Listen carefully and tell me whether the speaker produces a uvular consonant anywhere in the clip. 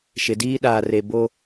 no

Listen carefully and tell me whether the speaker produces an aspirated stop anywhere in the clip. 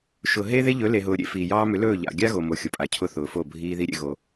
yes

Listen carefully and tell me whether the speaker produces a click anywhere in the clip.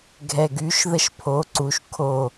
yes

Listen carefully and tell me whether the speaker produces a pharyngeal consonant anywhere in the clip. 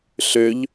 no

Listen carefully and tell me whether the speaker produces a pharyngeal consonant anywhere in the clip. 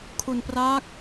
no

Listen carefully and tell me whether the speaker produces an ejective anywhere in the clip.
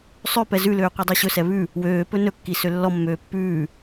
no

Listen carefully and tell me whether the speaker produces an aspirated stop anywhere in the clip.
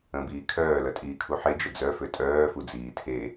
yes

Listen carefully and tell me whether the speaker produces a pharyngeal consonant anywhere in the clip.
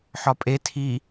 yes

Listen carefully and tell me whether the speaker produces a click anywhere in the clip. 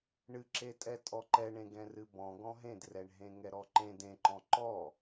yes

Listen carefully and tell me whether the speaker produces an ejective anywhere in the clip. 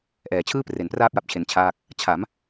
no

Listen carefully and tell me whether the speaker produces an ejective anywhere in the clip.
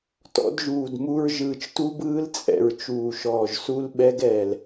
yes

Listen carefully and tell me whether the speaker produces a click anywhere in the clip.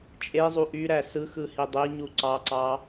yes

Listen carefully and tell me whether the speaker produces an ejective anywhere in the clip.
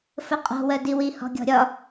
yes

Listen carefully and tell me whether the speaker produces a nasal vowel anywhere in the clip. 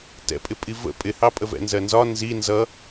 no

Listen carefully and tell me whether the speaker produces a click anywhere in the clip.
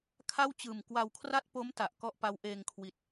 no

